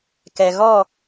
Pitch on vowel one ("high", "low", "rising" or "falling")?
low